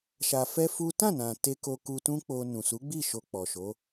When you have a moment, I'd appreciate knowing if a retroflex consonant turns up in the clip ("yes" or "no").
no